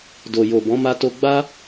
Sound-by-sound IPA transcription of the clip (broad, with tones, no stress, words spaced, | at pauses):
do˨jo˨bɔ̃˨˦ ma˧to˧ɡ͡ba˦